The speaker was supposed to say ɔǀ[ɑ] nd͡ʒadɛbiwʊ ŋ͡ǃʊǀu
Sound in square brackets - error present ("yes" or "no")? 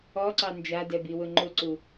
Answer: no